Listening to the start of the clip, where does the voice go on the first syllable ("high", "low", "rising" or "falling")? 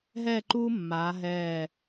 falling